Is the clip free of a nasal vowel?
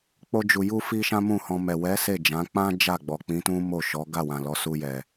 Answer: no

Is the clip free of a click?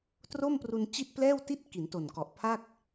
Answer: yes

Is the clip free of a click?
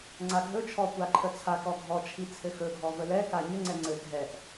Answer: no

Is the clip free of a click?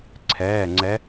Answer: no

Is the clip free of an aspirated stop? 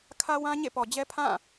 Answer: no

